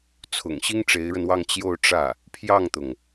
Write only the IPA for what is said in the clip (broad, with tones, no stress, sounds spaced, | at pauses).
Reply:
t͡sʰ ʊ̰˨˩ ŋ ɕ i˥ ŋ ʈ͡ʂ e˧˥ ɪ̯ ɻ ə˧ n w ɑ˥˧ ŋ t͡ɕ j o˥˧ ʊ̯ ʈ͡ʂ ä˥˩ | pʰ j ɑ˥˩ ŋ t̪ ʊ˩ ŋ